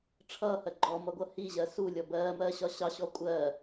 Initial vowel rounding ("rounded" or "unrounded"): unrounded